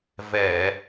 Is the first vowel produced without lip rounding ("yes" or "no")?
yes